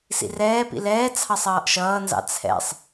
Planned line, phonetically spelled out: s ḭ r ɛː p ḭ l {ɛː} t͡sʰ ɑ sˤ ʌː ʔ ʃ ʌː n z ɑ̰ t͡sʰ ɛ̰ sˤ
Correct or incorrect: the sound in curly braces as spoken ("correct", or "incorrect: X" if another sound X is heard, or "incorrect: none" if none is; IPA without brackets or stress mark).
correct